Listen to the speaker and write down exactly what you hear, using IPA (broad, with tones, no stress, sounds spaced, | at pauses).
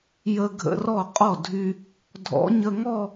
j ə˧ ɡʱ ə̰˧˥˧ r ɔ˥˩ qʼ ɔ˥˩ dʱ y˧ | dʱ ɔ̰˧˥˧ ɲ ə˥˧ ŋ ɔ˥˧